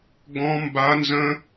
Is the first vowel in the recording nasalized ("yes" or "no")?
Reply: yes